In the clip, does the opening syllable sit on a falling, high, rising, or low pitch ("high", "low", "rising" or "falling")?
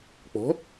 rising